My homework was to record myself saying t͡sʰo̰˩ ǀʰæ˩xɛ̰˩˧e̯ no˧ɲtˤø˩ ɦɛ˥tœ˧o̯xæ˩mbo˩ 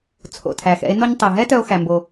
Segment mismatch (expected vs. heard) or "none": ǀʰ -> tʰ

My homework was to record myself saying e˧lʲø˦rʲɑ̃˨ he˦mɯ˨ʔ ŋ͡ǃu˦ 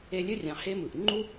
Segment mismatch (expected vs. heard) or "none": none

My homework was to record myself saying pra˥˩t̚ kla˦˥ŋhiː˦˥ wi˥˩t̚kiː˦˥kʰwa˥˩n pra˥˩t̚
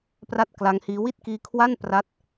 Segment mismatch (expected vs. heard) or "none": none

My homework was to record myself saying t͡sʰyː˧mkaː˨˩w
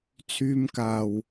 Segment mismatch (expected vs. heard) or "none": none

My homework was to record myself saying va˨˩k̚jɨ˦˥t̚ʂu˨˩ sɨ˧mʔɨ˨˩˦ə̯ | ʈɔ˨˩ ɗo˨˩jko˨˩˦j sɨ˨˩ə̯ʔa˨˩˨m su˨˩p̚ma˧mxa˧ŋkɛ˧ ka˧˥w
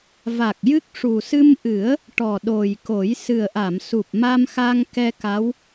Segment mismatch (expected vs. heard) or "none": t̚ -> k̚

